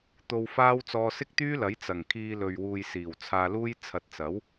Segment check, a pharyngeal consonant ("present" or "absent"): absent